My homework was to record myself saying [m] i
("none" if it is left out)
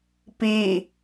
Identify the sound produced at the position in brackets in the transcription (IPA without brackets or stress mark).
p